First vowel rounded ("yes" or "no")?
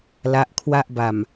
no